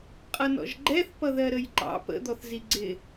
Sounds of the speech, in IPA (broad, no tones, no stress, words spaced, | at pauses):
qʼʌnɔ̰ʒɡ͡ǃɛθ pʌðɜɾəjǃɑ̰ pə̰ d̪ɔθziɡ͡ǀɪ